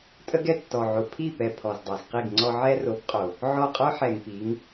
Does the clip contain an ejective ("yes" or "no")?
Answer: yes